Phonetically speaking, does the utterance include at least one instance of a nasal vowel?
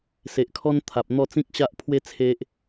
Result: yes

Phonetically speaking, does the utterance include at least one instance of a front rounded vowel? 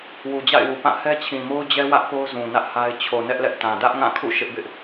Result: no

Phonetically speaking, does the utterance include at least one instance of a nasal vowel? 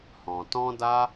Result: yes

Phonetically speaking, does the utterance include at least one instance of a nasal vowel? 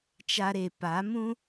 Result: yes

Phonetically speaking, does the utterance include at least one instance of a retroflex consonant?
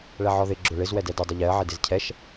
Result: yes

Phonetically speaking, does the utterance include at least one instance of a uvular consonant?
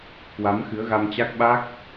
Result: no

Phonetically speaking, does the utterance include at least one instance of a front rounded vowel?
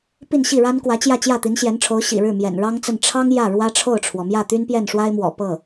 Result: yes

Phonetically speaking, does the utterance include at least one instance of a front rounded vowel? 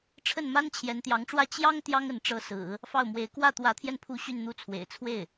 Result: yes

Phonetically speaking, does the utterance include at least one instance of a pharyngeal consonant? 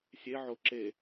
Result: yes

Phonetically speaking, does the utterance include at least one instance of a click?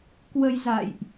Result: no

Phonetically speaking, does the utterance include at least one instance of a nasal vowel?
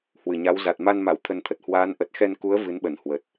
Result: no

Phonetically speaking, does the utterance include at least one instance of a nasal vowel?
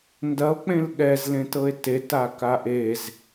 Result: yes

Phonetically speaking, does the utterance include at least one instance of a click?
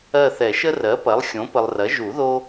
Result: no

